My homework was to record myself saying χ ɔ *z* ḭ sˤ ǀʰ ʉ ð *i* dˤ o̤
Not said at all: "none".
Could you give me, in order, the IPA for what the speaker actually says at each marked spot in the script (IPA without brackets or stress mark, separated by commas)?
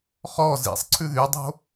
z, y